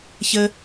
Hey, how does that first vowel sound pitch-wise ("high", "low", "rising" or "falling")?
high